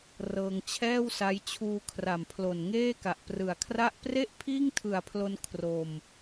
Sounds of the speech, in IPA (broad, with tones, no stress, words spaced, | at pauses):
rɤː˧ŋt͡ɕʰɛː˥˩wsa˦˥j t͡ɕʰuː˧kʰra˨˩mpʰlo˨˩n ŋeː˥˩ka˨˩ʔprɯ˨˩a̯kʰra˥˩ʔ pre˥˩ʔpʰiː˥˩ŋtʰɯ˨˩a̯pʰlo˧n kʰro˧m